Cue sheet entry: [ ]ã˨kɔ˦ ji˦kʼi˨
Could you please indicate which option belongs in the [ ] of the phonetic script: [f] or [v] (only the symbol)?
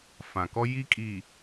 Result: f